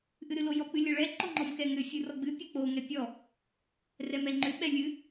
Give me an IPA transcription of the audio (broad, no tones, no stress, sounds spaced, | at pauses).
ʔ ɨ ɾ ɨ l o j ɔ k͡p ɨ lʲ ə ɭ ɛ ǃ ɔ ŋ͡ǃ ɔ m k ɛ ŋ ʏ fʲ ɨ r ɔ ɡ͡b ɨ pʲ o k͡p o ŋ ɛ pʲ ɔ | r ɛ m ɛ ŋ͡ǃ ʏ ɓ ɛ lʲ ɨ